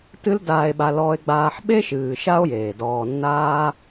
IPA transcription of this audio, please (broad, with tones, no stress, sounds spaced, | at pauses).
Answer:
t ɨ˧ l d aː˨ e̯ ɓ a˨ l ɔː˧ e̯ ɡ͡b aː˧ ħ ɓ e˦ ʃ ɨː˨ ʃ a˦ o̯ j eː˨ d ɔː˨ nː aː˧